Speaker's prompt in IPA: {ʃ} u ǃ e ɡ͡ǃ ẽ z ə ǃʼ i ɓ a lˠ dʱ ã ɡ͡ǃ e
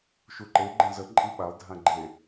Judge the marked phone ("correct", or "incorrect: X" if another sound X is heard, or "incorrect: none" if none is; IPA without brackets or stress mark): correct